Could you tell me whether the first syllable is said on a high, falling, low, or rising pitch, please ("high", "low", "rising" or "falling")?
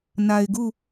low